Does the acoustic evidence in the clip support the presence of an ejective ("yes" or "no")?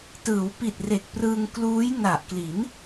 no